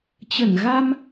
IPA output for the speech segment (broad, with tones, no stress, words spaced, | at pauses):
t͡ɕə˧˩nɣa˧m